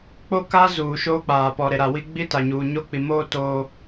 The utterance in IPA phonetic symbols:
k͡p o˦ k a˦ z uː˨ ʃ oː˦ k͡p aː˨ p ɔ˨ ɾ e˨ ɾ a˨ w i˦ ɡ͡b i˦ t a˨ ɲ uː˨ ɲ o˦˨ k͡p i˨ m oː˦ t oː˦

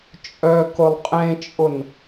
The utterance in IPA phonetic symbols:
t͡ʃʼ œ k ʊ lˠ qʼ ẽ t͡ʃʼ ʊ n

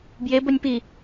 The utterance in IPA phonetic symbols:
b j e b o nʲ p i

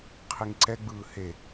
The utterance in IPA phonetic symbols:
qʰ i ŋ ǀ ɛ ɡ͡b ɯː h e

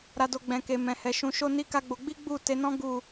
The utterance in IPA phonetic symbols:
ɾ a˨ d o˨ ɡ͡b ɛ̃˨ k e˨ m ɛ̃˨ h ɛ˨ ʃ ũ˨˦ ʃ o˦ n i˦ k a˦ ɡ͡b o˧ ɡ͡b i˦ ɡ͡b u˦˨ t e˨˦ n ɔ̃˦ ɡ u˦˨

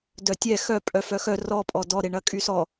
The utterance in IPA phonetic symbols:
d œ tʲ ɛ x œ pʼ œ f œ x œ r ɔ pʼ ɔ d ɔ ɾ e ɳ ɐ kʼ y s ɔ

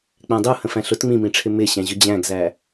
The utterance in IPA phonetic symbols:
k͡p æ̃ dˤ u h ə̃ f æ̃ ɬ ʊ t ŋ͡m ĩ m ĩ ʈ͡ʂʰ ɪ m ɪ ɕ æ̃ ʑ ʊ d͡ʑ æ̃ ɡ z æ

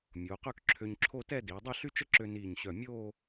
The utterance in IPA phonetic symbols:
mʲ oː˩˧ q œ˥˧ k ǁʰ ø˧ ɲ ǁʰ o˥˧ t ɛ˥˧ d iː˩˧ dˤ i˥˧ ɬ y˥ t͡ʃ ə˥ ǁ ø˧ n iː˧˩ ɲ ɕ œ˧˩ mʲ oː˥˧

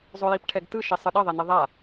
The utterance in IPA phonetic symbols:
zˤ o j i p ʈʰ ɛ ɡ t ɯ ʃ i sˤ ɯ ɗ ʌ ðˤ e n i ðˤ a

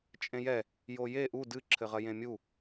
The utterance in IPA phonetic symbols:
t͡ʃʼ ẽ j ɛ | j o j e ʔ u d ɨ ǁʰ ɘ ʁ ɐ j ẽ mʲ u

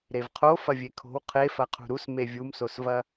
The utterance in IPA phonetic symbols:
ɾ e v qʰ o f ɐ vʲ e kʰ o̤ w qʰ e f ɐ qʰ ṳ ɾ u s m e vʲ u m s o s v ɐ

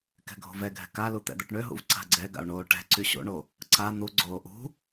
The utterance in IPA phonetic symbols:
k ɛ̤ ɡʱ o̤ v ɛ ɡʱ ɛ̤ k a l u t̪ ɛ̰ d̪ œ ʈ ɳ ø ɦ ṵ v ǀ a̤ ɡ͡ǀ ɛ ɡ a̰ o̯ ɳ oː ʈ ɛ̤ ǀ y ɕ o̰ ɳ o | ǀ a n̪ u ɡ͡ǀ oː ʔ ṳ

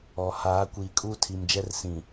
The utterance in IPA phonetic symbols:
ɔ˨ h aː˨˦ kʷ iː˨ kʼ uː˦ tʰ i˨ m d͡ʒ ɛ˦ r s ĩ˨

